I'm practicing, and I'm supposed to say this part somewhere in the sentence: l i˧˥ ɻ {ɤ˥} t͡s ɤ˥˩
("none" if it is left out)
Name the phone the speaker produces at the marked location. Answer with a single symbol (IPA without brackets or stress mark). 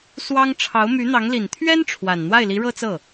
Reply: ɤ˥